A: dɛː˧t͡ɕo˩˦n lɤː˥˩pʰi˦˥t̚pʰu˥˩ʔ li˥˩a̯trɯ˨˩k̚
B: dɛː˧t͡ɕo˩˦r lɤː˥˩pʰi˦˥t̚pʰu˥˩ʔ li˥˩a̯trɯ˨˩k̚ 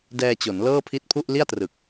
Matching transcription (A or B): A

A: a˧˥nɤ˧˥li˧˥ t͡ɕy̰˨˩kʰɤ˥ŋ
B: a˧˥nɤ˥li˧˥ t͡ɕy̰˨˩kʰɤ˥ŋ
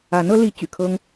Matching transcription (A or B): A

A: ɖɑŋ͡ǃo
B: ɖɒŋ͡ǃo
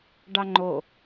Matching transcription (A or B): A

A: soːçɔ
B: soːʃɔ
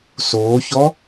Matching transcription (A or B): A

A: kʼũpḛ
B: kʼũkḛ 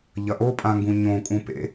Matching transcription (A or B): A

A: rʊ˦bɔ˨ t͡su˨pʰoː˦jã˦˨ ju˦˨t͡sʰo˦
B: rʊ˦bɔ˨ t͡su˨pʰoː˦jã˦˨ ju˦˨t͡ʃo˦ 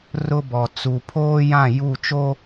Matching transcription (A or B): B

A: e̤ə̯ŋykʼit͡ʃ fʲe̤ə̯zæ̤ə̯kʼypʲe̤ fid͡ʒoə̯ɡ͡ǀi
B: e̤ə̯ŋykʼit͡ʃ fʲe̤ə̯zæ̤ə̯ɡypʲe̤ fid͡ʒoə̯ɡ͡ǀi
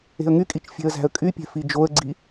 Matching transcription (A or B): A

